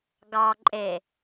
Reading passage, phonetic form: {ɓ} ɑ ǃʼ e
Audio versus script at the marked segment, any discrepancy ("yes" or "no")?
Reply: yes